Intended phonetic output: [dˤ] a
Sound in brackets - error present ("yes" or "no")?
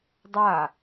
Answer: no